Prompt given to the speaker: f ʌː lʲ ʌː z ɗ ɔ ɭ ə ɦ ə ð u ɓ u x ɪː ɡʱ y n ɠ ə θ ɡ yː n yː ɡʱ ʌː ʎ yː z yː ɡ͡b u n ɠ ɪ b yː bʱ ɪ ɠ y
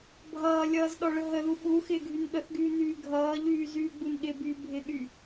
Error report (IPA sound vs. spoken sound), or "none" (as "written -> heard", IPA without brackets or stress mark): f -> bʱ